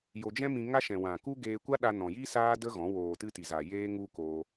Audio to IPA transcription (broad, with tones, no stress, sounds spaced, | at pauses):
j o˧ d͡ʒ ɛ̃˦ m ĩ˧ ŋ a˦ ʃ ɛ̃˨ w ã˨ k u˦ ɡ eː˧ kʷ a˦ ɗ a˧ n ɔ̃˨ j i˦ s aː˦ d ə˦ ɣ ɔ̃˨˦ w oː˨ t ɨ˧ t i˨ z a˨ j eː˦ ŋ u˦ k oː˧